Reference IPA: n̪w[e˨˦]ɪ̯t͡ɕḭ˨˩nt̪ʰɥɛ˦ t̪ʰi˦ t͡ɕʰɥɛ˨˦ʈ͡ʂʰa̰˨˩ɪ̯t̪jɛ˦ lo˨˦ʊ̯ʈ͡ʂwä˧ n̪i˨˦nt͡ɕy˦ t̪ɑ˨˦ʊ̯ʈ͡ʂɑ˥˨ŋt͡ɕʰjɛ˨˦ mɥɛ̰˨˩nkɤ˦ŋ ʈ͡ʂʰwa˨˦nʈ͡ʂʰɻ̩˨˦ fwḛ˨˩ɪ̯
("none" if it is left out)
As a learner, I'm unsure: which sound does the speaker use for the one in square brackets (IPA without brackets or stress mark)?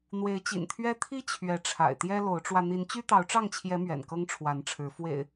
e˨˦